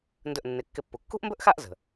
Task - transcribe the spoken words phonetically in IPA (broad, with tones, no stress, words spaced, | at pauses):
ndɵ˧˩ʔnːɪ˩˥ kːɪ˧˩pːu˩ kːṳ˥ʔmbɵ˥ʔxa˥˧ʔ zə̤˩